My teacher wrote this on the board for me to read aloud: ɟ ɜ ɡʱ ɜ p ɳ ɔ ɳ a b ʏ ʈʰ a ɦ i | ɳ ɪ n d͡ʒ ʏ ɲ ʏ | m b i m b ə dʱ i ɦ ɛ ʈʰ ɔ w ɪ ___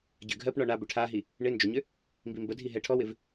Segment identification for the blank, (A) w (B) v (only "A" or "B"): B